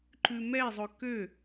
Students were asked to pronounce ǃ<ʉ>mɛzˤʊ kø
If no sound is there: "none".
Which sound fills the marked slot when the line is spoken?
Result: ʉ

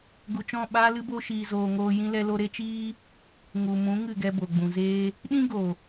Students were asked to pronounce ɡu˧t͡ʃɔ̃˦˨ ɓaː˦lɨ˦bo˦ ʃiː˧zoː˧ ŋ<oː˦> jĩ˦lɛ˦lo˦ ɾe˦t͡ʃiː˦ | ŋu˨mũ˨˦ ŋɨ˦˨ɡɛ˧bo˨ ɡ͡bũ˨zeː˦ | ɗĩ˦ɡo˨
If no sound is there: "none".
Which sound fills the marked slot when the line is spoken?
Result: oː˦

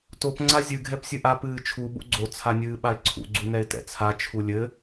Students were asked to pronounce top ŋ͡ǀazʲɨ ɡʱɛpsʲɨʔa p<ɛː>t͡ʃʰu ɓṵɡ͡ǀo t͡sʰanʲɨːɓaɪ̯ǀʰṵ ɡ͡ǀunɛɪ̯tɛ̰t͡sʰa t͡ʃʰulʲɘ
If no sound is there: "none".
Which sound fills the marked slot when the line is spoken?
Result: ɨː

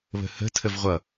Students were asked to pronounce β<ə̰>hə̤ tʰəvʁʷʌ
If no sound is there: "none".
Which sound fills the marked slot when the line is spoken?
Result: ə̤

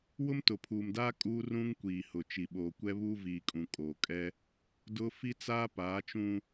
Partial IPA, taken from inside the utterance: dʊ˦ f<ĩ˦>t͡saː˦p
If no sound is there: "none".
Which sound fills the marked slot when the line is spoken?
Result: i˦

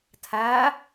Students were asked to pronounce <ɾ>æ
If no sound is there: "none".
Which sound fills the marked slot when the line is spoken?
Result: tʰ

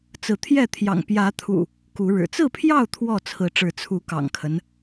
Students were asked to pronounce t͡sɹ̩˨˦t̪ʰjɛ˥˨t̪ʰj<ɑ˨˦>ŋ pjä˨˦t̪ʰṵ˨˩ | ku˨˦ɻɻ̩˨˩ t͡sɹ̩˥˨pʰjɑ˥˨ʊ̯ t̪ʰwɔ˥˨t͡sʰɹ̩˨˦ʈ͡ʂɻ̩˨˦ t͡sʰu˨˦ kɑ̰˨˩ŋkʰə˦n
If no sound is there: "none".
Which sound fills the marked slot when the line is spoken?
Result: ɑ̰˨˩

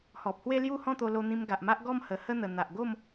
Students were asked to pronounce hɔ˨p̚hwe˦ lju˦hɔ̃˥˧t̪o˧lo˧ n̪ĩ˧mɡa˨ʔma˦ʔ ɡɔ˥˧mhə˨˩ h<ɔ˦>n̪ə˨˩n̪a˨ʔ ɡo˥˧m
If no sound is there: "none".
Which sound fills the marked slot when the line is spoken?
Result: ə˦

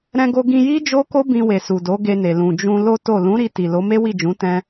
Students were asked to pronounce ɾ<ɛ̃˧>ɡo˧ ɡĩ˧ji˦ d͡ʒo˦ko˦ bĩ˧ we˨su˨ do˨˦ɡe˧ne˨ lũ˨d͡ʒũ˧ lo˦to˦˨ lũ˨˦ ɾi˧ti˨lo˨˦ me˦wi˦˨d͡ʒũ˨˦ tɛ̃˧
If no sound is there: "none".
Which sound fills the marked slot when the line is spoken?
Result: ɛ̃˧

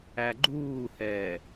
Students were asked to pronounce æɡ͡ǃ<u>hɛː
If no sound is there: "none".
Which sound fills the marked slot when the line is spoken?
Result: uː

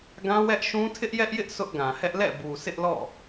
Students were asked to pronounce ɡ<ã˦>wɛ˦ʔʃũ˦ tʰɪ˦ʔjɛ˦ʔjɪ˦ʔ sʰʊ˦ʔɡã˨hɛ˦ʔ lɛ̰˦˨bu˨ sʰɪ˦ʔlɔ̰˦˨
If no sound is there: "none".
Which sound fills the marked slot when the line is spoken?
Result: ã˦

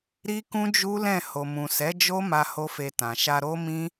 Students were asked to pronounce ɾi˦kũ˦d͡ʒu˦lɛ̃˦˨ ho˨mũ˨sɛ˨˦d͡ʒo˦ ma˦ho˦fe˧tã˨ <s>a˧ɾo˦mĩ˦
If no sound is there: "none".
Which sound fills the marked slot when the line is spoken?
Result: ʃ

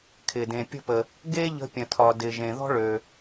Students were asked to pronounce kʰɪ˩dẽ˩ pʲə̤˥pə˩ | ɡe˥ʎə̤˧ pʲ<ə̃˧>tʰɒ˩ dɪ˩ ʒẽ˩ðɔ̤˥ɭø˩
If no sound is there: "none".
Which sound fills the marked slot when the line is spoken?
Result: ə̃˩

